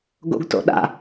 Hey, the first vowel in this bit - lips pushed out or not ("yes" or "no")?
yes